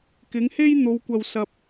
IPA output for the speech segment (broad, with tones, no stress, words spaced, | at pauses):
kɪ˨˥ŋhe˥j n̪o˨˧wkʷɐ˨w sɐ˧p̚